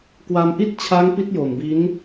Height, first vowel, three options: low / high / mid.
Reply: low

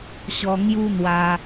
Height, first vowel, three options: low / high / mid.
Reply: mid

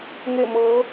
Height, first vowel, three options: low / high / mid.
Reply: mid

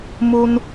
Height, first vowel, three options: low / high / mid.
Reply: high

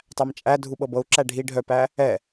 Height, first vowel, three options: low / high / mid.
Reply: low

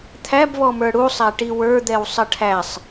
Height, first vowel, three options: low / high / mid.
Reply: low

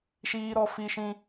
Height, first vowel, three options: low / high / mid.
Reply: high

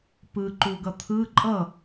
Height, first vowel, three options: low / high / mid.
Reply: high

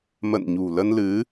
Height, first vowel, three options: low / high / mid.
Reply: mid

